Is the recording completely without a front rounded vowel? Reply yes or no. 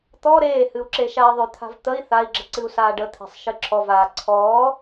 no